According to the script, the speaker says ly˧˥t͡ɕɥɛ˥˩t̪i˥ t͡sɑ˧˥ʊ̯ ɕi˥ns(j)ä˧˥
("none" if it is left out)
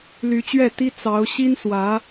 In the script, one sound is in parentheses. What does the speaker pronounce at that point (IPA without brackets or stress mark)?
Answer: w